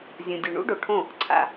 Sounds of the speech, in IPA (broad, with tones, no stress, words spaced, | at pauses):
zʲũ˩dʲu˩ɳṵ˥ ɖo˩ʈʰõ˥˩ | ǀʰa̰˧